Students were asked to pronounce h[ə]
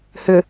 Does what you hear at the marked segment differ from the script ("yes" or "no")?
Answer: yes